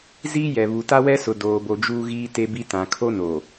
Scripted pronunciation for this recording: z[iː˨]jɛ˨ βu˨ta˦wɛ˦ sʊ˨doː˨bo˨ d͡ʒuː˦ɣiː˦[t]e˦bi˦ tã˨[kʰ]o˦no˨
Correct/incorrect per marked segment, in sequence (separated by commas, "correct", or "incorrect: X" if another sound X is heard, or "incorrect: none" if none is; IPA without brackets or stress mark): incorrect: iː˦, correct, correct